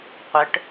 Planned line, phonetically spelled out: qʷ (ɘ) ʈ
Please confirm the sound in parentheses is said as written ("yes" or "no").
yes